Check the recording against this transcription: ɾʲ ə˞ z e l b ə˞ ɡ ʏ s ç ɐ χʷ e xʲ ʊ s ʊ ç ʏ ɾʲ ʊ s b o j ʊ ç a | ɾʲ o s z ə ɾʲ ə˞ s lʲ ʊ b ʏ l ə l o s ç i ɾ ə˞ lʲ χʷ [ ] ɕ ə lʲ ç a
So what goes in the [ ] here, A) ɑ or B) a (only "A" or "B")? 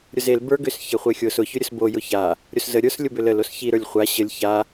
B